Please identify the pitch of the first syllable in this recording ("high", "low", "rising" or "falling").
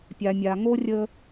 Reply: low